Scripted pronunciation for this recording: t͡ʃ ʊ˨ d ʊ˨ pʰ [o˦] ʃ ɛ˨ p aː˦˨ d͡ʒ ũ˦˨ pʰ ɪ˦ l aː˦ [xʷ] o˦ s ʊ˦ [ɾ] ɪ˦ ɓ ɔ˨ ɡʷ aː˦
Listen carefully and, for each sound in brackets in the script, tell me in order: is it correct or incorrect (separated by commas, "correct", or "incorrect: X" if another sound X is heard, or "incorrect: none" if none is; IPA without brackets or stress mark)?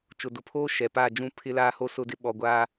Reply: incorrect: oː˦, incorrect: h, incorrect: d